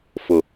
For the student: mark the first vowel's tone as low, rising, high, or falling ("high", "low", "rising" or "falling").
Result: low